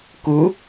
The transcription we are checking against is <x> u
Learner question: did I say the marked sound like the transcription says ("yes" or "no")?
no